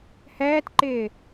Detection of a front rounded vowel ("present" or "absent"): absent